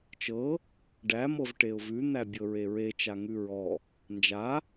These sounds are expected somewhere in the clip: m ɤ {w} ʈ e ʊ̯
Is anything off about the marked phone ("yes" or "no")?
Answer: yes